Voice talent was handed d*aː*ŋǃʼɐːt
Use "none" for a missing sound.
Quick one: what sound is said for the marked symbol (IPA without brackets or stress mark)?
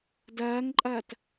ɐː